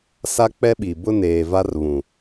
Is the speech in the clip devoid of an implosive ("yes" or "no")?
no